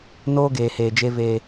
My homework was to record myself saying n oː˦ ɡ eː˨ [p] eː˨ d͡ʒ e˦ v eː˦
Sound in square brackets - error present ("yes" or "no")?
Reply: yes